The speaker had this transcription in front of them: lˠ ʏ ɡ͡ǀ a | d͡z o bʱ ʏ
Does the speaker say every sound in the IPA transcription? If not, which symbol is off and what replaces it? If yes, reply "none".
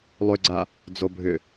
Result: none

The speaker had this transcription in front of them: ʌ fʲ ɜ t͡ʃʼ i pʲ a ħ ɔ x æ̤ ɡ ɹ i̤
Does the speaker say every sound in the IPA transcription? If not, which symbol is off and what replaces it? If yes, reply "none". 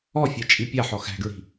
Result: ʌ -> ɔ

